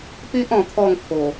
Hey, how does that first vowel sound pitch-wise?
high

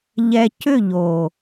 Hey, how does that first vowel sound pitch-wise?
low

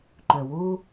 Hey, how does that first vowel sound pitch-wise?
low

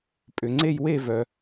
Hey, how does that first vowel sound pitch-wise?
low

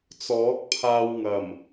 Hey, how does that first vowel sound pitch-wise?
rising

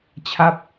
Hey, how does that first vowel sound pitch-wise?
falling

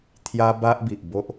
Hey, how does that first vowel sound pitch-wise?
high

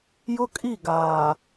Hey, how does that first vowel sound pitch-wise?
high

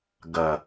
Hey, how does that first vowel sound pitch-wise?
low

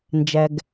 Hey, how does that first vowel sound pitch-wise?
low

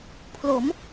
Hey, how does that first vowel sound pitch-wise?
rising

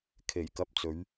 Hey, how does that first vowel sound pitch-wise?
low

